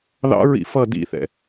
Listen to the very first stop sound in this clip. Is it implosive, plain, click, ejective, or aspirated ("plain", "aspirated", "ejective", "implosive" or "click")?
plain